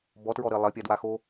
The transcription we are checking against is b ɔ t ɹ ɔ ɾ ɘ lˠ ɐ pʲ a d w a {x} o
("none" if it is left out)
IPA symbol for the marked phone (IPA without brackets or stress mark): x